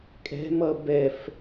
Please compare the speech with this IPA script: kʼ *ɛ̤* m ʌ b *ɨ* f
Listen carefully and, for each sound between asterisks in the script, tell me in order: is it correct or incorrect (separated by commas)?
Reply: correct, incorrect